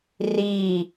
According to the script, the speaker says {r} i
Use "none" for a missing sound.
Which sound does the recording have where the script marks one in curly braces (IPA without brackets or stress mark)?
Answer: r